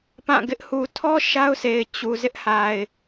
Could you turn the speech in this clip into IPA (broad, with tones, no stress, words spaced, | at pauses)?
pã˦˨ɡɪ˦ʔ hu˨tʰɔ˦ ʃa˦ʊ̯se˨ɪ̯ t͡ɕu˨zɪ˦ʔ ha˨ɪ̯